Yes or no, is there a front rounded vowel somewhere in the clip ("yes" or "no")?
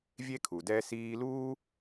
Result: no